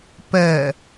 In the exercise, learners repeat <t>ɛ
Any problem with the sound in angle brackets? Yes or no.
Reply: yes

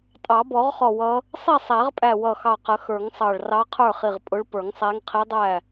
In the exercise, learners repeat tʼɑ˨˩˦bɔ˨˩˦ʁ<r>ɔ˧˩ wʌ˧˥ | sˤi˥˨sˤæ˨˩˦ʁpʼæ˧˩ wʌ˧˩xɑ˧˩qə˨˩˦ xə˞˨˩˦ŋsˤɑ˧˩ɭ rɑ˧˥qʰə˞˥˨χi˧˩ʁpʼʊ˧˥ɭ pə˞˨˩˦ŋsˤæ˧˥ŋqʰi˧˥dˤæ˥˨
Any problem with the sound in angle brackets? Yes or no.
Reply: yes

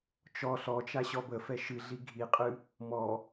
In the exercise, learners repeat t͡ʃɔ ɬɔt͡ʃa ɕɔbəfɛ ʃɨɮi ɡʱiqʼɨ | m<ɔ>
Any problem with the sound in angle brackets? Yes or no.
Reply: no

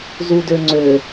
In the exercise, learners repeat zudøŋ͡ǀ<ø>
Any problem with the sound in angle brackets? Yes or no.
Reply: no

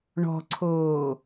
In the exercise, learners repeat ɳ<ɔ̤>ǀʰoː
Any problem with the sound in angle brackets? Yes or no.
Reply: no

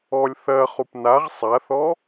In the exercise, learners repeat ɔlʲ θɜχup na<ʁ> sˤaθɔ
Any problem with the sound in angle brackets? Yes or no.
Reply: no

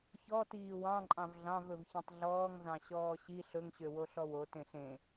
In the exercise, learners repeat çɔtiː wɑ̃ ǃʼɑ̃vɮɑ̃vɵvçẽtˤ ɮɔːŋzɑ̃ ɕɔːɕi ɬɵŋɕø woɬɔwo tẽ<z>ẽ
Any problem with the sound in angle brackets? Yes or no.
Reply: yes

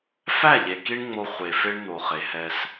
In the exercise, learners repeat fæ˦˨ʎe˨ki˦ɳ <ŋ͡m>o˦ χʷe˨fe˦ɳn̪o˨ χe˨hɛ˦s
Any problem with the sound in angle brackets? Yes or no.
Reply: no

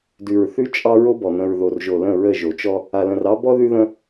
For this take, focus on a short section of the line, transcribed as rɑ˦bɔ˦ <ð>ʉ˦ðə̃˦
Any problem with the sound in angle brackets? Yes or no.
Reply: no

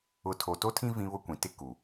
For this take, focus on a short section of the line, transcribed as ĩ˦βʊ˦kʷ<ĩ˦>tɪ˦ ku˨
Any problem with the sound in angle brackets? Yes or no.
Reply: yes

